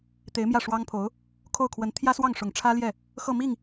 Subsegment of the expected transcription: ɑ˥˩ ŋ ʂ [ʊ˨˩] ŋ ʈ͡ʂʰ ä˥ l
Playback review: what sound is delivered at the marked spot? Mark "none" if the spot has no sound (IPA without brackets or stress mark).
ʊ˨˩